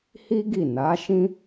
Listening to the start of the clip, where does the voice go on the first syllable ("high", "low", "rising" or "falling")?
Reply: high